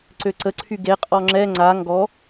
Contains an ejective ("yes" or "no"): yes